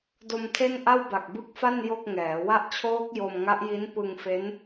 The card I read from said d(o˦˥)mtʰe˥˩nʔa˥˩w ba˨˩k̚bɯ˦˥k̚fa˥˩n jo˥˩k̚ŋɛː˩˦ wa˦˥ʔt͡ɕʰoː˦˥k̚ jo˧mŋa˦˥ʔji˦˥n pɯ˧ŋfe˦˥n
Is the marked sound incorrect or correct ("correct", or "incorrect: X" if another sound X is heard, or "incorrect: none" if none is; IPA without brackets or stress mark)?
incorrect: o˧